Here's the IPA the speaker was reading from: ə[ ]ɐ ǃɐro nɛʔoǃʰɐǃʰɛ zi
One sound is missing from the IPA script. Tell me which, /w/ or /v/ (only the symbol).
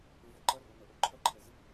v